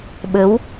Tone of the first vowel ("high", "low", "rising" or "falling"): rising